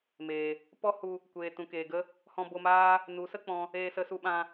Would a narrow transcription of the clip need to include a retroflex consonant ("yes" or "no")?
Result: no